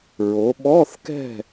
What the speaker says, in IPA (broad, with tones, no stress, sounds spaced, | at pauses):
ɹ o˩˧ ɓ ɔ˧˥˧ θ k ɛ̤˥˨